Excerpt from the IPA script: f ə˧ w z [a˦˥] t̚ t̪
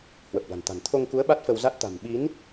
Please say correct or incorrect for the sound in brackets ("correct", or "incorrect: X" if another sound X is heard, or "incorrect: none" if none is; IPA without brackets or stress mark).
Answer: correct